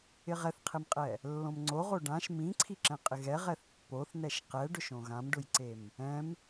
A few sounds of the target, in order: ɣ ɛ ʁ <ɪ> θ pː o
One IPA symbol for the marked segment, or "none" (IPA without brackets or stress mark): ɛ